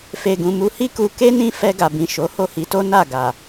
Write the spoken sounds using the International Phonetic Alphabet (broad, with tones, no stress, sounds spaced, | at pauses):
f e˨ ɡ ũ˨ m u˨˦ h i˦ k u˧ k e˦ n ĩ˦˨ f ɛ˧ ɡ a˨ b ĩ˨ ʃ o˨˦ h o˦˨ h i˨˦ t o˦ n a˦˨ ɡ a˨